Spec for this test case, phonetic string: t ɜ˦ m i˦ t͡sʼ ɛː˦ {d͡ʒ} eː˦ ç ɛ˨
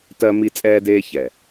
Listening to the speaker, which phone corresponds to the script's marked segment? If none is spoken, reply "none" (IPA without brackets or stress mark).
d